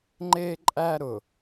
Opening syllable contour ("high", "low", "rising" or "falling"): high